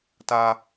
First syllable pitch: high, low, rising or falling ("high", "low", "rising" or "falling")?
high